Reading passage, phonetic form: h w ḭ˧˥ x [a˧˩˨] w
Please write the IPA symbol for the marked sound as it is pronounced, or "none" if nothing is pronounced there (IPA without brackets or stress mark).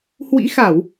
a˧˩˨